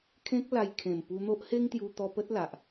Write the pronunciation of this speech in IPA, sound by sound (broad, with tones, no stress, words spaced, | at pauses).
kʰẽ˦k̚ la˧j kʰẽ˨˩mpu˧n̪o˦ʔ he˦ŋt̪ju˧t̪ɔ˧ pə˦t̚la˨ʔ